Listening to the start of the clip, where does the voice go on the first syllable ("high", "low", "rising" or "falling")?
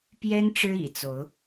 high